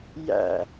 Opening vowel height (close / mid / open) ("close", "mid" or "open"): open